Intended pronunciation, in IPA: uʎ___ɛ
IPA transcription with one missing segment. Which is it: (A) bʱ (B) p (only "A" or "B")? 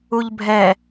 A